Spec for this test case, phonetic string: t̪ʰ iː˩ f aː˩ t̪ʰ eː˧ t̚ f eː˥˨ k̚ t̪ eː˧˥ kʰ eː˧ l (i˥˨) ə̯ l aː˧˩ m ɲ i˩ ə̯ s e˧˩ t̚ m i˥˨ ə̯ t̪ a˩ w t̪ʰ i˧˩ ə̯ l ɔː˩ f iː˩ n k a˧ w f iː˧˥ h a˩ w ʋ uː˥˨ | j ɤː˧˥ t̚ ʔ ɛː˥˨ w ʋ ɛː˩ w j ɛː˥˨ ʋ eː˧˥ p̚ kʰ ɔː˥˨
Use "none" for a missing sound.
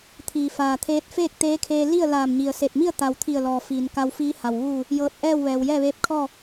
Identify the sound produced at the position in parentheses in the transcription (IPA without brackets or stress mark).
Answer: i˥˨